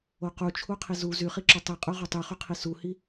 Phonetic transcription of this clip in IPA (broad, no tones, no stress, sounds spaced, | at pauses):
o q u t͡ʃʰ u qʰ i z u z y χ i ǁ ø tˤ i qʼ ø ʁ o tˤ y χ y qʰ i s u h i